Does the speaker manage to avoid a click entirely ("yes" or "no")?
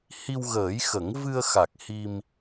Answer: yes